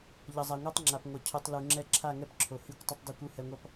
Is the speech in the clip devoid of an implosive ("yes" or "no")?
yes